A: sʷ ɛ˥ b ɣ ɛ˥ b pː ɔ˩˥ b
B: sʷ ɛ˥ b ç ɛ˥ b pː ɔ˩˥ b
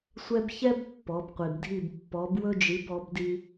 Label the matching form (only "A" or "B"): B